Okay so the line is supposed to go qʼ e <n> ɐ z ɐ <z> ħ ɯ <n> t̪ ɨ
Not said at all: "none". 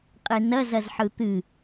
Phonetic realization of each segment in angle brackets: n, z, none

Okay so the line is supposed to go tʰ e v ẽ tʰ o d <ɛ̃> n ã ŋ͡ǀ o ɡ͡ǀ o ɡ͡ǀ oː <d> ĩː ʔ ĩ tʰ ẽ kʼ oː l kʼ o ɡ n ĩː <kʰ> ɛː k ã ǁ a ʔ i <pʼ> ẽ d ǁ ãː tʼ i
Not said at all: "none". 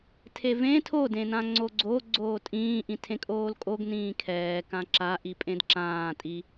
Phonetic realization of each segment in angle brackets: ẽ, tʼ, kʰ, pʼ

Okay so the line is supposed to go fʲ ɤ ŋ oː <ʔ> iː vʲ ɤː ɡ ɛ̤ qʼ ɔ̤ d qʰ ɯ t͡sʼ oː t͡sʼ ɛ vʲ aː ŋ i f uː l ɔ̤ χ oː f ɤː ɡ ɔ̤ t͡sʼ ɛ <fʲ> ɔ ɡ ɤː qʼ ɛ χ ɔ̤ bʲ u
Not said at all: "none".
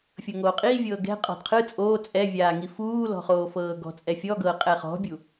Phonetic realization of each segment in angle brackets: qʼ, fʲ

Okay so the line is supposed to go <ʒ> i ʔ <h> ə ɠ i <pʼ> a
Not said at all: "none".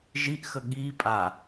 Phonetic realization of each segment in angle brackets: ʒ, x, pʼ

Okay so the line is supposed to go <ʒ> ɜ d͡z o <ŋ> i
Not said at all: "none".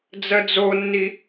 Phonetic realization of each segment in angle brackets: d͡z, nː

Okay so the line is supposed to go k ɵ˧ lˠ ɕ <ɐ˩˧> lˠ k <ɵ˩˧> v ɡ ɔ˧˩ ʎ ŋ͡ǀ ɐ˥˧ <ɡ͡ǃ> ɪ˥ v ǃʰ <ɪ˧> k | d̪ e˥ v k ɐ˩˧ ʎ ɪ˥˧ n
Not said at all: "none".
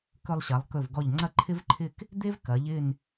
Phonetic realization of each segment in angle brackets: ɐ˩˧, ɵ˧˩, ǃʰ, ɪ˥˧

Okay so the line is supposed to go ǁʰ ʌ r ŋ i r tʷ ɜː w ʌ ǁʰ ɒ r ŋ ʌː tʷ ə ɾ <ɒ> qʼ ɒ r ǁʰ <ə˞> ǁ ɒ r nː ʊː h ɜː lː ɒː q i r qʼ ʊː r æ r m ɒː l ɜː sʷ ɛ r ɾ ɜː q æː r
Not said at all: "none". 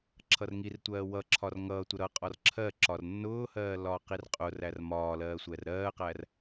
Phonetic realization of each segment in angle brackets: ʌ, ɜ

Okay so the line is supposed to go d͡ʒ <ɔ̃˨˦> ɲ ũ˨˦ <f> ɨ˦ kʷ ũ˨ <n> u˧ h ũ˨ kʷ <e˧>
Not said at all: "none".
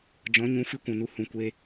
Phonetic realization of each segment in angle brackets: ɔ̃˨˦, f, n, e˧

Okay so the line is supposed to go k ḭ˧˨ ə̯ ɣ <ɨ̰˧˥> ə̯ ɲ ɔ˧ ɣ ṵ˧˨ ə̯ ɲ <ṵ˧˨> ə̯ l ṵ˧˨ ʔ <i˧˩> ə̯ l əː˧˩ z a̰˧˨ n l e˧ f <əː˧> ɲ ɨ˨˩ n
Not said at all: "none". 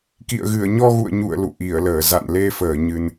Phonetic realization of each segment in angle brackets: ɨ˧˩, ṵ˧˨, i˧˩, əː˧˩

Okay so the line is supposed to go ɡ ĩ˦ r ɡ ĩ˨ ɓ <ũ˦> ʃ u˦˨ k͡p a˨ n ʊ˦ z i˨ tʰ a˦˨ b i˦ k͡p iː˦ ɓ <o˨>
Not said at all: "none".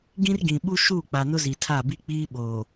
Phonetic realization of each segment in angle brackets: u˦, oː˨

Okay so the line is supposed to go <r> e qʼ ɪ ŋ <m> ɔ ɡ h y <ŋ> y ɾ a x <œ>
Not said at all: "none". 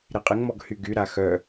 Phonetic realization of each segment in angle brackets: ɾ, m, ɡ, œ

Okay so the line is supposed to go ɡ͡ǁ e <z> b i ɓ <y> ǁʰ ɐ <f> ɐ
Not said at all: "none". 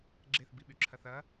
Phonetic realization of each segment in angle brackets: θ, y, θ

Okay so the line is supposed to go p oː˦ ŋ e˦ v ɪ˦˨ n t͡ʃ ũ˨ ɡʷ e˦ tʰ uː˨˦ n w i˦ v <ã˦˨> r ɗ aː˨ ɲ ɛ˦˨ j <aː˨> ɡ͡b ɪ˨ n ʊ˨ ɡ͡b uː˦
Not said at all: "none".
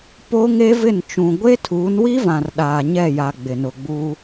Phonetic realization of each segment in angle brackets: ã˨, a˨

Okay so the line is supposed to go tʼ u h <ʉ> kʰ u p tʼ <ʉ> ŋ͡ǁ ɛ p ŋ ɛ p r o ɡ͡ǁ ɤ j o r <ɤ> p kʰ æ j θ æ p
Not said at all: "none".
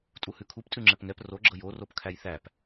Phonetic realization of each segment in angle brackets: ʉ, ʉ, o

